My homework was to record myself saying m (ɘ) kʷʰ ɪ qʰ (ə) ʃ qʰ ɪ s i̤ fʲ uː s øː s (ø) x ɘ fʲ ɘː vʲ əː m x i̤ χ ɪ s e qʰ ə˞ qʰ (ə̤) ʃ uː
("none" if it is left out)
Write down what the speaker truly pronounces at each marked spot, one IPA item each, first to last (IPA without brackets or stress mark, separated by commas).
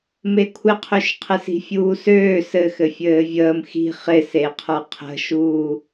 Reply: e, ø, ɘ, ə̤